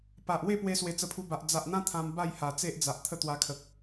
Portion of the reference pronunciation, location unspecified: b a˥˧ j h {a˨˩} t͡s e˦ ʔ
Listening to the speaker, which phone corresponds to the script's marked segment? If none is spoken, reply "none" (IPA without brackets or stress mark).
a˨˩